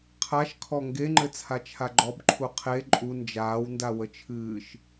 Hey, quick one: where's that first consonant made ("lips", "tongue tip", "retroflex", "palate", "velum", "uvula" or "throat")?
uvula